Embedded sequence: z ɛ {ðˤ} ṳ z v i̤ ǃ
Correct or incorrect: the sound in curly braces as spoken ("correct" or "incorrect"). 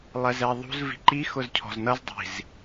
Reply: correct